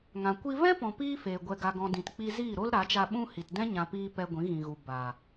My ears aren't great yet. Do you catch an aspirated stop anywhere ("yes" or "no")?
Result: no